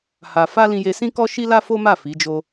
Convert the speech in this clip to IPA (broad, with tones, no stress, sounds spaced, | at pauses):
h a˧ f a˦ l ĩ˧ j e˧ s ĩ˦ k ɔ˦ ʃ i˦ l a˦ f o˦ m a˦˨ f i˨˦ d͡ʒ o˦